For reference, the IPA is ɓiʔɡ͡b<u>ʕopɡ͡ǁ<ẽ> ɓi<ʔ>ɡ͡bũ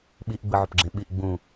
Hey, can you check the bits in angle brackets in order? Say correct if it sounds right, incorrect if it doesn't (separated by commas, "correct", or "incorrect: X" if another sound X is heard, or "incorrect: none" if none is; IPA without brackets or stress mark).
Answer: incorrect: ɯ, correct, correct